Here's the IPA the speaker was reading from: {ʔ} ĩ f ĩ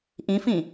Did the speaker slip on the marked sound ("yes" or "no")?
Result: no